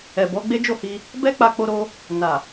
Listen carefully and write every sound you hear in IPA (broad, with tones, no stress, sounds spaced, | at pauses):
ɛ˨ b ɔ˨˦ ɡ͡b e˦ d͡ʒ o˦˨ h i˧ | b ɛ˦ k͡p a˧ k͡p o˧ ɾ o˧ | n a˨